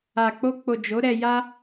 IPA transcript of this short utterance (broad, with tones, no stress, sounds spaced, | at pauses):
a˨ k͡p o˧ k͡p o˨ d͡ʒ o˨˦ ɾ ɛ˧ j a˦